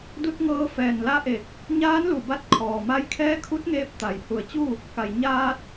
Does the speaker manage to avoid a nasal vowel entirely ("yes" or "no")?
yes